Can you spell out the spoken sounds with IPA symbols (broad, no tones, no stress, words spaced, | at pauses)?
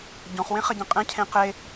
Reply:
ɟɔ̃χwẽχɐɟẽ qʼɛ̃cʰẽ qe